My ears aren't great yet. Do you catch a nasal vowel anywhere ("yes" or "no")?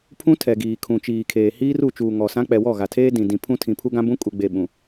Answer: yes